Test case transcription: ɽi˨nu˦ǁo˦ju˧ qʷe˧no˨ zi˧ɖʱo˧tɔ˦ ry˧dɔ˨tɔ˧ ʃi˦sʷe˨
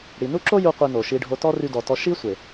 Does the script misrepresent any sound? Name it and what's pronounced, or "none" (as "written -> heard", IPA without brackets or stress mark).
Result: z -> ʃ